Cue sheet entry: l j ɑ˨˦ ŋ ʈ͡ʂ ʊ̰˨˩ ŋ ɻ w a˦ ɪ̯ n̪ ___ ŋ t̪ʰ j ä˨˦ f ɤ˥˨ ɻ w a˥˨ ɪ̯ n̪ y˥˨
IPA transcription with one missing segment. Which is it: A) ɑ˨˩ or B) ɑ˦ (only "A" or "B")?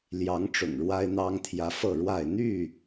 B